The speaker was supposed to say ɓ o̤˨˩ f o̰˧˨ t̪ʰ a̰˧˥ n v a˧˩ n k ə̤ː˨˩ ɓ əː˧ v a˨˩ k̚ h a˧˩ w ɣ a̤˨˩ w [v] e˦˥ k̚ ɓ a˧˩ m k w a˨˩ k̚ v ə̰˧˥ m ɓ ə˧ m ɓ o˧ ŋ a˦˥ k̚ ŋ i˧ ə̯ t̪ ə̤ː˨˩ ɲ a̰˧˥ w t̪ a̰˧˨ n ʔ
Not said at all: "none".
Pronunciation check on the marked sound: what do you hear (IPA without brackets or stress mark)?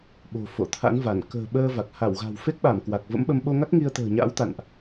f